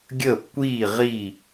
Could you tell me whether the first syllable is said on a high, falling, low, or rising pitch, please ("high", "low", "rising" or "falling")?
falling